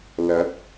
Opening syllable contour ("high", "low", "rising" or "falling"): rising